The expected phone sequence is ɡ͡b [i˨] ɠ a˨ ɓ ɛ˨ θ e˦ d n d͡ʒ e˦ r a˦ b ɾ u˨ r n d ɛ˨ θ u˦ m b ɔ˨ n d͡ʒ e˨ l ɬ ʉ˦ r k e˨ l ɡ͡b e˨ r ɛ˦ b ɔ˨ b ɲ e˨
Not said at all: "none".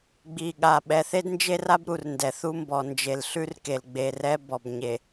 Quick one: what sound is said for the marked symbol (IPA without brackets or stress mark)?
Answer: i˨